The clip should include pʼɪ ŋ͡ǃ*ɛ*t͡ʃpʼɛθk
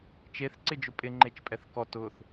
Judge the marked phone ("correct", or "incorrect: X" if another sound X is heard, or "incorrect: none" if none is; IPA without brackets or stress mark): incorrect: e